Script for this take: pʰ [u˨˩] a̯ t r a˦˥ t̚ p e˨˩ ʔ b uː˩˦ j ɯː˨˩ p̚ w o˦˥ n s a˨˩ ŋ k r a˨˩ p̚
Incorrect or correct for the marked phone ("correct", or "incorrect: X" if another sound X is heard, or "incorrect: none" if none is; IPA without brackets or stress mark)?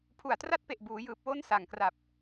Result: correct